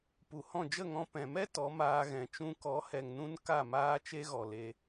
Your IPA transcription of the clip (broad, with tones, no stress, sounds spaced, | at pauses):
p u˨ h ɔ̃˦˨ d͡ʒ ə˦˨ ŋ ɔ̃˧ p ɛ̃˨ m ɛ˦ t ɔ˨˦ m aː˧ ɣ ɛ̃˨ t͡ʃ ũ˧ k ɔ˨˦ h ɛ˨ ŋ n ũ˦ n k a˦˨ m aː˦ t͡ʃ e˦ ɣ ɔ˨ l e˧